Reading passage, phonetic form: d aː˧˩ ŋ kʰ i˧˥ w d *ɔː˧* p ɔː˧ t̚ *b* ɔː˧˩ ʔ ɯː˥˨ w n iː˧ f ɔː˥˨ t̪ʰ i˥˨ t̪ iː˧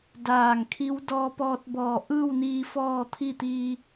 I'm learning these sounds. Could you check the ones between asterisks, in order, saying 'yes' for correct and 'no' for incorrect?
yes, yes

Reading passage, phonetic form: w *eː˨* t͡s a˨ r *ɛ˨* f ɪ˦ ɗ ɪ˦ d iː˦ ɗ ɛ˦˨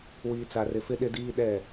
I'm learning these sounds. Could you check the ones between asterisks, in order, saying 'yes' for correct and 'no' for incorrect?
no, no

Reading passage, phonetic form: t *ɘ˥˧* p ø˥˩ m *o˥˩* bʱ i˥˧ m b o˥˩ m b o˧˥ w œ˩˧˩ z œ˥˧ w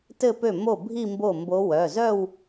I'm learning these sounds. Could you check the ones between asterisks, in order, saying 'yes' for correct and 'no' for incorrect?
yes, yes

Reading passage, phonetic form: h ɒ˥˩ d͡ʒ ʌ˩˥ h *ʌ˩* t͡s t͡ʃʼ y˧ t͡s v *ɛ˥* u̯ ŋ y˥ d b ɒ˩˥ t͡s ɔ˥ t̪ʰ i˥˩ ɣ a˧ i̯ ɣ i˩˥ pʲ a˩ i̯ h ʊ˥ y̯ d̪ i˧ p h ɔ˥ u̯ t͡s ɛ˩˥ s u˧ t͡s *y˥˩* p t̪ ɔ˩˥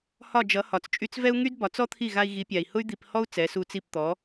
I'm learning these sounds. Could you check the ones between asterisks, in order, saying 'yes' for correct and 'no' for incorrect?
no, yes, no

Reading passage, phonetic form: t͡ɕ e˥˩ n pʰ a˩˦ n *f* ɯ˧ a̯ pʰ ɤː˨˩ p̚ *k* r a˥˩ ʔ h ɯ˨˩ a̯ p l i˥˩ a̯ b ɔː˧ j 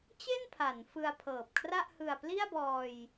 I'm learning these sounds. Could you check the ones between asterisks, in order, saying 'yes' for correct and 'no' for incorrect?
yes, no

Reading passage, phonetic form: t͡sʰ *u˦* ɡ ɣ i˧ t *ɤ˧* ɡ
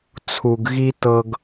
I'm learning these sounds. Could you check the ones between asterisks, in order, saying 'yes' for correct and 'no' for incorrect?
no, yes

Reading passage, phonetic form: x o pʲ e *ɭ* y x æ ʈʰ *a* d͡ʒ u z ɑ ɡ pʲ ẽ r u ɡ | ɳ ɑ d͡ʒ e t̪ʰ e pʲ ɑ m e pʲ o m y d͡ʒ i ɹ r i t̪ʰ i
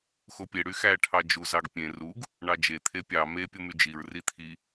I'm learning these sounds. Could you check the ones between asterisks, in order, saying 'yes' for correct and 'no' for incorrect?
no, no

